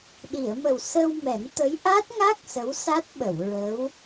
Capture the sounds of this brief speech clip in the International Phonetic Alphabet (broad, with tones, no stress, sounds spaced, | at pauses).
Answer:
ɗ i˨˩˨ ə̯ m ə˨˩ w s ə˧ w m ɛ˨˩˦ n t̪ ə˧˥ j ʔ a˦˥ t̚ ŋ a˦˥ k̚ s ə˧˥ w s a˦˥ t̚ ɓ ə˨˩˨ w ɹ ə˧˥ w